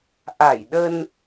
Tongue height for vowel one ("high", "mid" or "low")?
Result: low